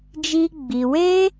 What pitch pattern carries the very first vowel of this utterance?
high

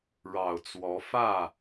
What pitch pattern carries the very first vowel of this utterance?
low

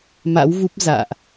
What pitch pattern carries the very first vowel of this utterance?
rising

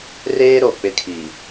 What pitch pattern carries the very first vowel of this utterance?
high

